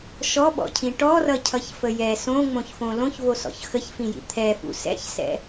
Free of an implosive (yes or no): no